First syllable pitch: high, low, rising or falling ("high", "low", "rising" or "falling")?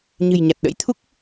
low